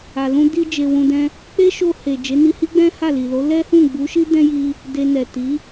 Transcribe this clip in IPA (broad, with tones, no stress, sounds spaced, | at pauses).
a˨ l ũ˧ d i˧ d͡ʒ e˧ w ũ˧ d ɛ̃˦ | k͡p e˦ ʃ o˧ h e˨ d͡ʒ e˨˦ n i˧ h i˦ ɡ͡b ɛ̃˦ h a˦˨ l i˨ l o˨˦ l ɛ˦ h ũ˦˨ ɡ͡b u˨˦ ʃ i˦ d ɛ̃˦ j i˧ | d e˧ n ɛ˨ t i˨˦